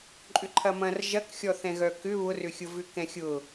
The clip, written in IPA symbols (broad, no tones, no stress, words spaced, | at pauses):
ǃʼʏǃʰɐmɐ̃r ʒɐkxʲɔθɛ̃ɣœ kʏ βʊrʏxʲʊ vʏkɛ̃xʲʊ